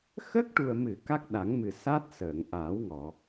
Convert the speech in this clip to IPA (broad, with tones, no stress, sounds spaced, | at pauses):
x ə˦˥ k̚ ʈ u˨˩ ə̯ m ɨ˨˩˨ k a˦˥ k̚ ɗ a˨˩˦ ŋ m ɨ˨˩ s a˦˥ t̚ s əː˨˩˨ ŋ ʔ a˨˩˦ w ŋ ɔ˨˩˨